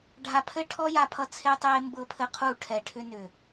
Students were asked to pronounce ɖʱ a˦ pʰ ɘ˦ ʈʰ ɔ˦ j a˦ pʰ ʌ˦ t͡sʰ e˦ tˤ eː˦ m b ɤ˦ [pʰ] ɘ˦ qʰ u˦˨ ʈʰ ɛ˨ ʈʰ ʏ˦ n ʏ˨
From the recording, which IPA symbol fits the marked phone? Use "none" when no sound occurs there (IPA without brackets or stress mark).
pʰ